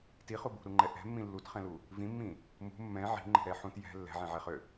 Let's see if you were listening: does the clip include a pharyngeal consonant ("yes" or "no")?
yes